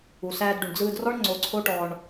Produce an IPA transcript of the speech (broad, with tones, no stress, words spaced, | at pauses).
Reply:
u˩sæː˧d ɖu˩ɳd͡zɯː˧drɔ˥ɳ ŋ͡ǀo˧ǀʰo˥ʈɔ˧ɳ